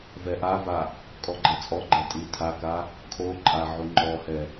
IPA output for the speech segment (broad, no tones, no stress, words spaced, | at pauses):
vɛʔava | kʼɔɡ͡ǃɛt͡sʼɔɡ͡ǃɛ tʼitʰaka | kʰoǃʼa ʕuŋ͡ǃɔhɛ